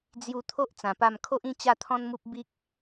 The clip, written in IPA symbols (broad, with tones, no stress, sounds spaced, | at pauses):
d͡z j u˧ t̪ʰ o˦ ʔ t͡s ã˨˩ p a˥˧ m kʰ o˦ ʔ ĩ˥˧ t͡ɕ a˥˧ t̪ʰ ɔ̃˦ n m u˦ p̚ b i˦ k̚